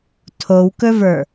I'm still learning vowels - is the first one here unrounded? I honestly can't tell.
no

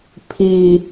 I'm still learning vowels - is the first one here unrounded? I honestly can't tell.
yes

